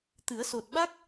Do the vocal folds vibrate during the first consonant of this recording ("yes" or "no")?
no